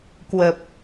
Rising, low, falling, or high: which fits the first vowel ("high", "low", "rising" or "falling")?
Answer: low